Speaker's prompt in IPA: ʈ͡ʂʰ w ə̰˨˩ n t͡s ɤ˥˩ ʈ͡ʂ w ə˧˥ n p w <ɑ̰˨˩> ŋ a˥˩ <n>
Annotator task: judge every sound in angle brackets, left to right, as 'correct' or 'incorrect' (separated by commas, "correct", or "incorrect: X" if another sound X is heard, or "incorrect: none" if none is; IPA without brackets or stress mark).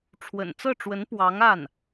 incorrect: ɑ˧˥, correct